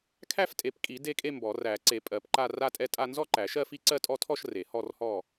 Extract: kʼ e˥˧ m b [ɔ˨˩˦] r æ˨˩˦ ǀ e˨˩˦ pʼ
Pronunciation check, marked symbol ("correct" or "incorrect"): correct